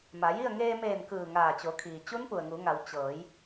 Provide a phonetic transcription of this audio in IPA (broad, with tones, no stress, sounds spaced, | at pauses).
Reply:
m a˩˧ j i˥˨ ə̯ ŋ eː˧ m eː˧˩ n k ɯː˧˩ ŋ aː˧˩ t͡ɕ o˩˧ kʰ iː˩ t͡ɕ u˧˥ n p u˩ ə̯ ŋ u˩˧ ŋ a˩˧ w t͡ɕ ɤː˩˧ j